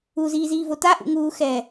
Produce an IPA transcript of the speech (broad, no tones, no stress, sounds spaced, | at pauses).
u z iː z iː v o t a ʔ ṵ ŋ uː x ɛː